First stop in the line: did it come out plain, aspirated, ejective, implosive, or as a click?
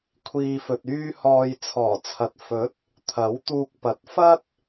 aspirated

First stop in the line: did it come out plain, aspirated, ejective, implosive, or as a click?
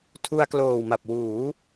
aspirated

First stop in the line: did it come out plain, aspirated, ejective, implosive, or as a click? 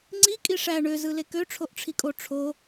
click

